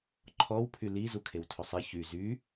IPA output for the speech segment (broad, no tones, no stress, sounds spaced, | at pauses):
ǃʰ ɔ w pʰ y l i z u kʰ e w tʰ ɵ sˤ i ç y z y